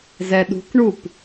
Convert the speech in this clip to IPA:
zɛɗṳkɳup

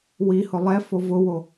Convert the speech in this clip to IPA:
wihʊ lˠɛfo vʊwo

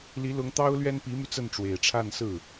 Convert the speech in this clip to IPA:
li˧˥lʊ˧˥ŋ t̪ɑ˥ʊ̯lɥɛ˥npi˧˥my˧ t͡sə˥˩nʈ͡ʂwe˨˩ɪ̯ ʈ͡ʂʰa˥˧nsɹ̩˥˩

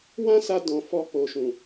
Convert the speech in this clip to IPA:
wã˦sa˧dɔ̃˨ fɔ˧k͡po˨ʃũ˨

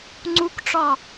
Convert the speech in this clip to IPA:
ŋ͡ǀukʈ͡ʂɒ

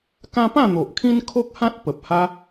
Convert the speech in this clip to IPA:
kã˦pã˥˧n̪o˨ʔkʰĩ˦n kʰo˦k̚hã˦t̚ pə˨p̚ha˦

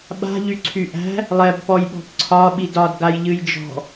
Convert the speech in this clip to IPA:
ɓa̤ ʎyǀʰyʔæ̤ | lˠɛbpɔjɓɔ̤p ǀʰɒɓid ɒd ɡajʎɨjd͡ʒɔ̤

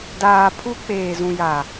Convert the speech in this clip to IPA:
daː˨ pʰu˦k͡peː˨ zũ˨ja˨

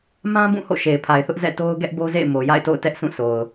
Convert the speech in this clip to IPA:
mã˦bũ˦˨ ho̰˦˨ʃe˨ɪ̯pʰa˨ɪ̯θʊ˦ʔ zɛ̰˦˨to˦ʊ̯ ɡɛ˦ʔbo˦zḛ˦˨ɪ̯ mo˨ja̰˦˨ɪ̯to̰˦˨ʊ̯tɛ˦ʔ sʰũ˦˨sʰo˨ʊ̯

